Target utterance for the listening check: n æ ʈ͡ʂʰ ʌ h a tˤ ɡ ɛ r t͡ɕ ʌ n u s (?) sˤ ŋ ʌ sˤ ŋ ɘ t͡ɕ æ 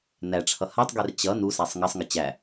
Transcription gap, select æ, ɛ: æ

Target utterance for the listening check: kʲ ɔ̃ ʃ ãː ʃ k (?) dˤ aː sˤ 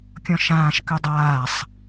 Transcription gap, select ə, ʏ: ʏ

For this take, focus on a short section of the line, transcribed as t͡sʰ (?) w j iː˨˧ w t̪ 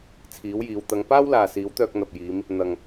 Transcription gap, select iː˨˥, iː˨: iː˨˥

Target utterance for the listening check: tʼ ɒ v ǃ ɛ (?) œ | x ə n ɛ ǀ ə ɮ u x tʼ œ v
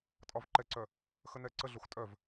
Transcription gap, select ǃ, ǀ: ǀ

